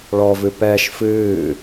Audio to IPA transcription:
ɭɔvɨ pɛʃ fɨː

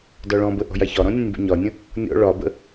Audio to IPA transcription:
dɒɭɔ̃bə ʔɔ̤jaçɒɾɔ̃ nʲə̃nʲbə̰ɲɒnʲə̃ | nʲɔ̰ ɭɒbə̰

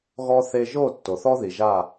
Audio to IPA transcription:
ɣɔ˦ θe˧ʒo˦˨ tːo˨θɔ˦ði˨ ʒa˦˨

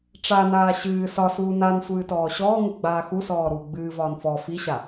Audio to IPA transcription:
ʈ͡ʂanaː ɕɨː sɒsuː nan sʷɨːtɔːɕɔːŋɨ ɡ͡baːxusɔː ɾuːɡ͡bɨːvɒːn fɔ fiɕa

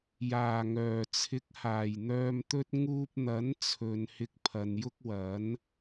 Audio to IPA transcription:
jaː˨˩ŋœː˨˩t͡sʰɪ˨˥k̚ haː˨˩jn̪œː˧mt̪ɵ˥t̚ ŋuː˧p̚n̪ɐ˨˥nt͡sʰɵ˨n hɪ˧k̚pʰɐ˨˧njʊ˥k̚ wɐ˨˥n

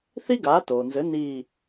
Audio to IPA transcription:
θi˥ɡaː˩˥toː˩nzɘ˩˥ ni˧˩

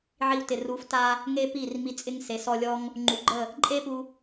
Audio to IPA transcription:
ʕi˧wtɪ˨ ru˨˦fta˧ | ŋe˦pi˦˨r mi˧t͡sʼɪ˦ŋse˨˦ sɔ˧ lʲɔ˦ŋ | ŋ͡ǃu˨˦ɡ͡ǃə˦˨ | ǃʼe˦pu˧

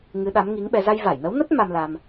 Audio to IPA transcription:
ŋɨ˨˦ɗa˨˦mŋi˨˦ŋɓɛ˧ za˧jva˧˩jnə˨˦wnə˦˥t̚ ma˧mla˧m

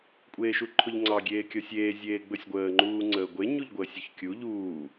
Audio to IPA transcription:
kʷʼeːʃuǃʰʊʎŋ͡ǀɑ ɡʲeːkʲɔsʲeː zʲeːɡ͡bɵsʲɡʷəː ŋ͡ǃuːŋ͡ǀəːɡʷe ɲuʎɡʷəːsʲoçkʲu ʎuː

